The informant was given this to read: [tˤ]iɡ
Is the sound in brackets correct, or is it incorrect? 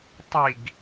correct